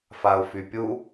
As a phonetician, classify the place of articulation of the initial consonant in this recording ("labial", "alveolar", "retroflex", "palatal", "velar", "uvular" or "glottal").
labial